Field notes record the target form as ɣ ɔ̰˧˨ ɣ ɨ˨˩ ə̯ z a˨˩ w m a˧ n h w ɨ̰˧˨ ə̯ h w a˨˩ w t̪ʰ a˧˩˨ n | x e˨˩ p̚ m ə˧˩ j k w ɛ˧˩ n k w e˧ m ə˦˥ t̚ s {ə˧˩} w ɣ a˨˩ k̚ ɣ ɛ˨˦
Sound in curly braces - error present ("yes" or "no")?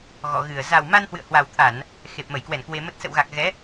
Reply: yes